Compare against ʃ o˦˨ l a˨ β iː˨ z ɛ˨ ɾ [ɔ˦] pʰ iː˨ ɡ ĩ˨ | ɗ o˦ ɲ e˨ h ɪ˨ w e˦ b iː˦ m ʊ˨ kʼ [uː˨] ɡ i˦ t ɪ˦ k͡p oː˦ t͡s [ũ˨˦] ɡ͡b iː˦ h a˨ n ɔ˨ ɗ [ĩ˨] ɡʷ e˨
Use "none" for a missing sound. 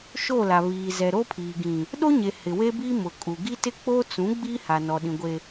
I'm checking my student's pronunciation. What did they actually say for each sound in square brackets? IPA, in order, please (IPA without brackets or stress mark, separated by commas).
o˦, u˨, ũ˨˦, ĩ˨